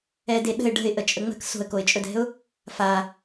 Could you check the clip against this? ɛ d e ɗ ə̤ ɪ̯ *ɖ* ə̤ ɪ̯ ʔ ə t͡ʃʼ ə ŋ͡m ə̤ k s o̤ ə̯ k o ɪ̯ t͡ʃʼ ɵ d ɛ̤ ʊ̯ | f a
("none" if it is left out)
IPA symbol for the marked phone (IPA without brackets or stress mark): ɖ